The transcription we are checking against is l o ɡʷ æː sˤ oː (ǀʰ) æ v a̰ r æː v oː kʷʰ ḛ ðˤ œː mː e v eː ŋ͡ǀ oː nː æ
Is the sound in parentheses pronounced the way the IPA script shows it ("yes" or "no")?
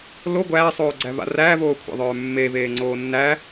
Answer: no